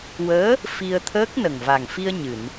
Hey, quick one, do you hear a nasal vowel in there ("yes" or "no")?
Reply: no